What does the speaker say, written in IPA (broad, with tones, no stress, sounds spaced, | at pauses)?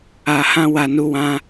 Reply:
a˨ h ã˦ w a˨ n u˨˦ w ã˦